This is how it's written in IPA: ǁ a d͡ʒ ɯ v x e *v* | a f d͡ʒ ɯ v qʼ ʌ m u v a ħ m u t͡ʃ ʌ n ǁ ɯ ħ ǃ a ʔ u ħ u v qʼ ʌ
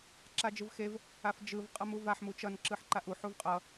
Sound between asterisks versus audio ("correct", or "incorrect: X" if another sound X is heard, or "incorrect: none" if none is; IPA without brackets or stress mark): correct